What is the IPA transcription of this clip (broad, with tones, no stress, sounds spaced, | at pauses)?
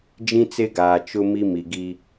d͡ʒ ĩ˦ t͡s e˦ ɡ aː˨ t͡ʃ ʊ˦ m i˦ m i˨ ɡ i˦